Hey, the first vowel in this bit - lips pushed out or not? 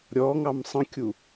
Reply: yes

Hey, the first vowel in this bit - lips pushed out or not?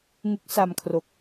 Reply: yes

